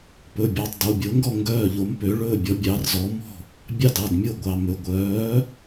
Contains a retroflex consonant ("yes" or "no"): yes